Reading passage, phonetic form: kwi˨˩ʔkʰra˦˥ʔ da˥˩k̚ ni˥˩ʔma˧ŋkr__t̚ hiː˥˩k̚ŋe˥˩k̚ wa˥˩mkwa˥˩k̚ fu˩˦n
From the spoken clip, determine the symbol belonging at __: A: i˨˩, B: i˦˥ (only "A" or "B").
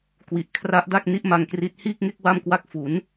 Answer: B